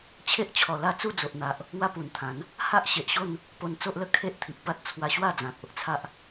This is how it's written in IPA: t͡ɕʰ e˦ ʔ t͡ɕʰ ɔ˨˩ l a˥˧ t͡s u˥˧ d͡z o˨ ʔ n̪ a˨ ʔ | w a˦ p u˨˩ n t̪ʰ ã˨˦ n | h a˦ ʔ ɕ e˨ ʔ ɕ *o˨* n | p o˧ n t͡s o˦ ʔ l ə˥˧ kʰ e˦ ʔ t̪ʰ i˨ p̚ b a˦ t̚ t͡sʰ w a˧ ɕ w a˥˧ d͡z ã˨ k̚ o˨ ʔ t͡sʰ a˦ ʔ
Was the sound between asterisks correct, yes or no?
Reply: no